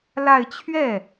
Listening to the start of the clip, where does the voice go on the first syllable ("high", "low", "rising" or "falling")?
falling